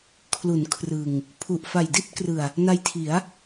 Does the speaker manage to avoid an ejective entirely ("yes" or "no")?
yes